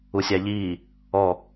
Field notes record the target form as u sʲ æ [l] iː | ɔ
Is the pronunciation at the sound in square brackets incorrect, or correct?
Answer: incorrect